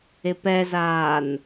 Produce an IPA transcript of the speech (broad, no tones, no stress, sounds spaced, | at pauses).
ɪ p ɛ z aː n